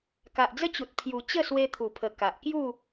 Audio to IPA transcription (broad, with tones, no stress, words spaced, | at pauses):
ka˨ʔd͡zə˦t͡ɕu˨t̚ pʰju˨˩ t͡ɕə˥˧swe˧t̪ʰu˨˩pʰə˨˩ ka˨ʔkju˥˧